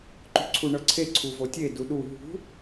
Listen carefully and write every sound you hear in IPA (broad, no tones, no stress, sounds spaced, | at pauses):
ǃ ṳ ǀʰ u ɳ ɤ ǀʰ e ǀʰ u v o tʲ e d u ɗ u ɦ ṳ